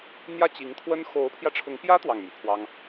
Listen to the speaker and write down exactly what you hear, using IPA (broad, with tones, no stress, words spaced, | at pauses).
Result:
n̪jä˥˩t͡ɕi˧˥ŋt̪ʰwə˥n xo˧˥ʊ̯pʰjä˧ʈ͡ʂʰʊ˧˥ŋpjä˥ t̪wɑ˥˩ŋmy̰˨˩pʰwɑ˥ŋ